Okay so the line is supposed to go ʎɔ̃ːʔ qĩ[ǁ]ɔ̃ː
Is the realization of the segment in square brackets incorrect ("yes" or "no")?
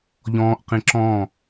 no